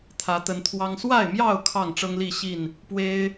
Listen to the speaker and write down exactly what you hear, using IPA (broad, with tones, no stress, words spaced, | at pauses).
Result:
t̪ʰä˨˦t̪ə˨˦nt̪ʰwɑ˦ŋ swa˥˨ɪ̯mjɑ˥˨ʊ̯ kʰɑ˥˨ŋʈ͡ʂɤ˦ŋli˥˨ɕi˥˨n | pwe˦ɪ̯